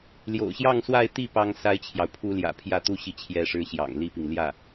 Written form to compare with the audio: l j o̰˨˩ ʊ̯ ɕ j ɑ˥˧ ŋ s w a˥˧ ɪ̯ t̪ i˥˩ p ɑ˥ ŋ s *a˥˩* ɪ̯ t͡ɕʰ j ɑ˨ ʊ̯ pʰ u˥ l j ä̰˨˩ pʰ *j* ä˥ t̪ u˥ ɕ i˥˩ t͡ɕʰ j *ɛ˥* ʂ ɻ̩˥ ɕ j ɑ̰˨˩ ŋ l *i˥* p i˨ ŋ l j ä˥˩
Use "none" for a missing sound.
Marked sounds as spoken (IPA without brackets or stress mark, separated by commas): a˥, j, ɛ˥, i˥